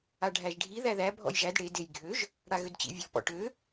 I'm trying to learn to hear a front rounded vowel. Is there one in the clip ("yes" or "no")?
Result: yes